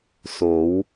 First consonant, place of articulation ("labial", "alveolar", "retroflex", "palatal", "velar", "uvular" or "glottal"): alveolar